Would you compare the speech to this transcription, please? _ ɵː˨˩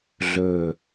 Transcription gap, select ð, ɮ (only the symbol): ɮ